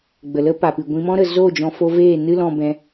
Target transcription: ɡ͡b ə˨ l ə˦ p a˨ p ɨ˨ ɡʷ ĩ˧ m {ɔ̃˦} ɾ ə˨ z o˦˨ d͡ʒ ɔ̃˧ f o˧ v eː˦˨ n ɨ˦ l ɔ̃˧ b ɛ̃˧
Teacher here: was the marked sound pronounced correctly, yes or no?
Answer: yes